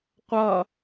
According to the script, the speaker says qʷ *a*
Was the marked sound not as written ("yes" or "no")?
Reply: yes